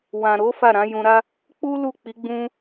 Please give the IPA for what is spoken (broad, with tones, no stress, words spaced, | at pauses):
wã˨ɾo˨˦ fa˦˨ɾã˨˦jũ˧ ɾa˦ | k͡pu˦ lu˦˨k͡pi˨˦ ɡ͡bũ˦